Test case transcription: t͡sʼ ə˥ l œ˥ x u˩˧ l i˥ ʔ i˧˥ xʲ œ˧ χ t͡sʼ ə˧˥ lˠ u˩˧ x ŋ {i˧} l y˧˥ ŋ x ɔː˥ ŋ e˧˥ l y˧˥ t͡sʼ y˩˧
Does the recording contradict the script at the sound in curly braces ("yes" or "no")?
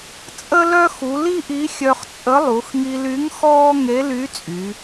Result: no